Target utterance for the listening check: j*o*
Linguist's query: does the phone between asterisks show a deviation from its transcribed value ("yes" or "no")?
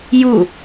yes